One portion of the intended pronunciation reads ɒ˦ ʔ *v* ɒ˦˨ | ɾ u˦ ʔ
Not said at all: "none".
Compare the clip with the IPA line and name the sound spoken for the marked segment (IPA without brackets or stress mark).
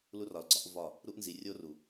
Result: v